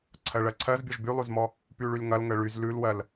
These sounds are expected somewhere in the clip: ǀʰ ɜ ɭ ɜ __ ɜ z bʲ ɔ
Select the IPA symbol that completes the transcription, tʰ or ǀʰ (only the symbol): ǀʰ